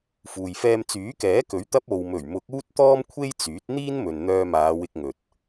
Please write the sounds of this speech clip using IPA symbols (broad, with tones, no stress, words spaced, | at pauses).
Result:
fuː˨jfɛː˧m t͡syː˨˥kɛː˨˥kɵ˨˥ɥt̪ɐ˧p̚ o˨wmɵ˨˩ɥmʊ˨˥k̚ uː˥t̚t̪ɔː˥mkʷʰe˥jt͡syː˨˥t̚ n̪iː˥nmɵ˨n n̪œː˧maː˨˧wɪ˧k̚ŋɵ˨t̚